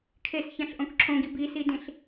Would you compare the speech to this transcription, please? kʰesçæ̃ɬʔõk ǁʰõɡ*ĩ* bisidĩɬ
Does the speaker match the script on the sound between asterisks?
no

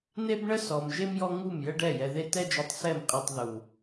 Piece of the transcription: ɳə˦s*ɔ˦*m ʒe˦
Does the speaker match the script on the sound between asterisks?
no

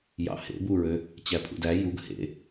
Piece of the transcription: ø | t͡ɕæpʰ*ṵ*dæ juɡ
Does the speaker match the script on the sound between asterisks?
yes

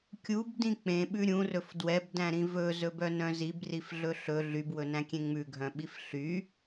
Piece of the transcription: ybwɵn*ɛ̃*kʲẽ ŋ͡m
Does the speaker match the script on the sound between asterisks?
no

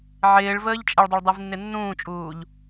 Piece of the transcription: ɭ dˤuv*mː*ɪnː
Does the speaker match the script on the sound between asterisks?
no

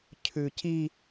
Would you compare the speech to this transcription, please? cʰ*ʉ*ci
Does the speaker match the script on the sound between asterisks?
yes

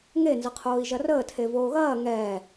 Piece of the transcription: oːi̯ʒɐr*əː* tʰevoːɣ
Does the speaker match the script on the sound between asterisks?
yes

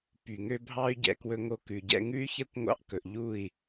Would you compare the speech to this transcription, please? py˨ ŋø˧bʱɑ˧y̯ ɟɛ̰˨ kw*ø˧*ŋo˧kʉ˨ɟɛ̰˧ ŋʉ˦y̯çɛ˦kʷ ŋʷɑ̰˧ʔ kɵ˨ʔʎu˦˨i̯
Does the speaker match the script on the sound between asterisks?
no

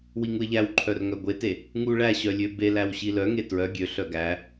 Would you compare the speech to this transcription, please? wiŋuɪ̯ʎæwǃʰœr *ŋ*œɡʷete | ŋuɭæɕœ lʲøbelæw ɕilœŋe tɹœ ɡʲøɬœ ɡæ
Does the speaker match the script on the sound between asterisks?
yes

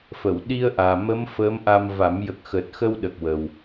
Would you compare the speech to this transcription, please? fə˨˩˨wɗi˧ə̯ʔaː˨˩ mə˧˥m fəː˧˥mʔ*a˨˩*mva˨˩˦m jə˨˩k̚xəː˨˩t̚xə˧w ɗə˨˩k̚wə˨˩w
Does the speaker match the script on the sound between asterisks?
no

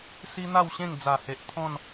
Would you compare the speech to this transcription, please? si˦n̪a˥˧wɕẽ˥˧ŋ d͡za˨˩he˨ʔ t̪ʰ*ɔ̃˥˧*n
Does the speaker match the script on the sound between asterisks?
yes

